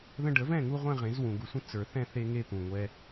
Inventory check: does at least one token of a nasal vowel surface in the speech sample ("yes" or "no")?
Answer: yes